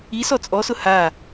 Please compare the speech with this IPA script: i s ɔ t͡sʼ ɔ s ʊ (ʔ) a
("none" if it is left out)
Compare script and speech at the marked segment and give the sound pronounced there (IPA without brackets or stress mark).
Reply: h